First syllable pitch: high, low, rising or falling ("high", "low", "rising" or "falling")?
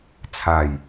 low